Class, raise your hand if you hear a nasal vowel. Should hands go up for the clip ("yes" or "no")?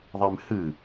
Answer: no